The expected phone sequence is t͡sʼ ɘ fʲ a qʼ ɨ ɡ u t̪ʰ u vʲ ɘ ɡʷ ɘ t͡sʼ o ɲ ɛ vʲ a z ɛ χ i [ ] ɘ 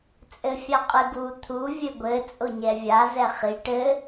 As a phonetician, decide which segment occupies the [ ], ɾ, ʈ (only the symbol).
ʈ